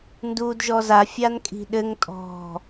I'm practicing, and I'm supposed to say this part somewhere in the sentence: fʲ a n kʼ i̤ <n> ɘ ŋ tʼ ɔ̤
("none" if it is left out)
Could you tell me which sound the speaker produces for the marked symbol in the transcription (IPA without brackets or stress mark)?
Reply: ɗ